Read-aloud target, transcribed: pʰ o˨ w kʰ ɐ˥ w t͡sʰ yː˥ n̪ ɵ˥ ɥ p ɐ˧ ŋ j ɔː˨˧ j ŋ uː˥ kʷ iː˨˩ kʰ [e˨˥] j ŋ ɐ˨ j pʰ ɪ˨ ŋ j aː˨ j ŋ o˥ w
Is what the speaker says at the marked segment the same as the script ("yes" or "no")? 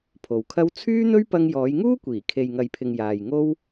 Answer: no